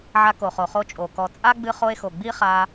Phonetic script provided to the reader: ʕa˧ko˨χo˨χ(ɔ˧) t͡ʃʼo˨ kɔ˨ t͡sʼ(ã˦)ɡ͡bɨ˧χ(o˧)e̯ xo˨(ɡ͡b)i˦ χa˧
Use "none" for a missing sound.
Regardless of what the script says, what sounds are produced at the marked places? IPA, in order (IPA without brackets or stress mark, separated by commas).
o˧, a˦, o˧, ɡ͡b